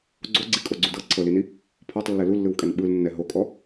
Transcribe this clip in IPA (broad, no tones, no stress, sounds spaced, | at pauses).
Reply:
ɡ͡ǀ o ɡ͡ǀ i kʼ o ɡ͡ǀ u d ɤ ǀʰ ɤ l i n i | pʰ ɔ tˤ lː ɛ l u lː ɯ w kʼ ɛ n ɓ ɯ l nː ɛ ɦ o kʼ ɔ